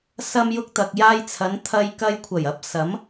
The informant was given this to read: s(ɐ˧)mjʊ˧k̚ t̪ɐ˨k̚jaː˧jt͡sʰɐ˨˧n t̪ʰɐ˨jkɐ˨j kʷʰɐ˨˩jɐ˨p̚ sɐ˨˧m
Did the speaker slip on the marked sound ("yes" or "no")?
no